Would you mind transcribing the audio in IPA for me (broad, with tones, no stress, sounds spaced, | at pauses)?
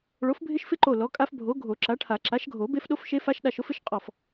ɭ o˨˥ f bʱ ɪ˦˥ ʃ f ɪ˦˥ ǃ o˧˩ l ɔ˨˥ kʼ a˦˥ f bʱ o˨˥ ɡʱ o˨˩˦ ǁ a˨˥ ʈʰ a˨˩˦ ǁ a˨˥ ʃ ɡʱ o˨˩˦ b e˦˥ f ɗ o˦˥ f ʃ e˦˥ f a˦˥ ʃ ɗ a˧ ʃ ʊ˨˥ f ɪ˨˥ ʃ qʼ ɔ˧˩ f